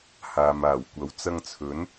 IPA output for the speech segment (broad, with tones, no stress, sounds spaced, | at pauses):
h aː˨ m aː˨˩ w kʷ ɐ˨˥ w t͡s ɐ˧ ŋ t͡sʰ ɵ˨˥ n